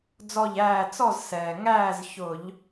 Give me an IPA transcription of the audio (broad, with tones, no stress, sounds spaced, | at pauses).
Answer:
d͡z ɔ˥˩ ʎ æː˥˩ t͡s ɔ˥˩ z s ɛː˩ ŋ æː˥˩ z ç ʊ˧˩˧ ʎ